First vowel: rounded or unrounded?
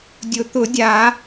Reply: rounded